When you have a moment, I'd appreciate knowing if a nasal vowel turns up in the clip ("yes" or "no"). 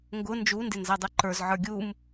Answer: no